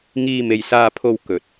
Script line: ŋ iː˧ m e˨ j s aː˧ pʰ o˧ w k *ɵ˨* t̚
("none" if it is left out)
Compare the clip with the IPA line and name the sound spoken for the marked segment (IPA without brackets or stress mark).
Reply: ɵ˨